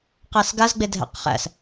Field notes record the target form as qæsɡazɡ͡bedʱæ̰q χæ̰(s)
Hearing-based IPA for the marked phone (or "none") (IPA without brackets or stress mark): s